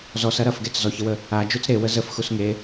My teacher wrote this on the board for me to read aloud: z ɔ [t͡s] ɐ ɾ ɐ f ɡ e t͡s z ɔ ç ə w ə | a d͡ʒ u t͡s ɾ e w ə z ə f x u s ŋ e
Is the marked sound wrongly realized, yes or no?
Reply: yes